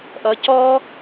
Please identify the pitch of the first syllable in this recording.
rising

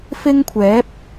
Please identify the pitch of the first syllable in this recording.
high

